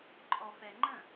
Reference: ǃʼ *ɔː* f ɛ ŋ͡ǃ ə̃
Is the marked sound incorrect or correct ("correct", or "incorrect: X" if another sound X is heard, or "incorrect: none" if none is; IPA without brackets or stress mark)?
incorrect: ɔ